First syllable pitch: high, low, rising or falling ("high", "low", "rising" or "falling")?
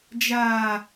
low